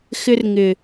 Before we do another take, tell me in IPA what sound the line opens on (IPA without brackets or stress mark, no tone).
x